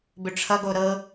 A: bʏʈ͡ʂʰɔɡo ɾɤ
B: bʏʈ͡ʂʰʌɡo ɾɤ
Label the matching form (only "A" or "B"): B